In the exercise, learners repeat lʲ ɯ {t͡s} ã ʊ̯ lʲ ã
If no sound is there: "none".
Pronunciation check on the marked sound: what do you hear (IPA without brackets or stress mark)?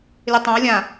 tˤ